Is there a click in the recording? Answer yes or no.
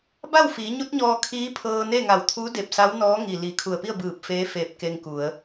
no